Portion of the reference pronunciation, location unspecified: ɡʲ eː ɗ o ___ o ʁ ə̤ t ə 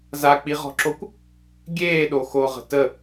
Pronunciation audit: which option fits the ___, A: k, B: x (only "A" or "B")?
B